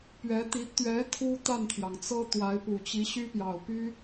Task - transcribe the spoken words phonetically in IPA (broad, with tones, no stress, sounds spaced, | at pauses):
p ɥ ɛ˧˥ t̪ i˧˥ t̪ ɥ ɛ˧˥ t̪ʰ u˥ t̪ a˥˩ n t̪ʰ j ɑ˩ ŋ t͡s ɤ˥ t̪ w a˧˥ ɪ̯ p u˨˩ t͡ɕ i˧˥ ɕ y˥ p j ɑ˨˩ ʊ̯ p y˥